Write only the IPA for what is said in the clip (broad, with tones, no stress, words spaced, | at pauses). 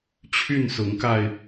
t͡ɕʰy˥˨nsʊ˨˦ŋka˧ɪ̯